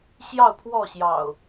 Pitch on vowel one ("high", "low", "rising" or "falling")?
falling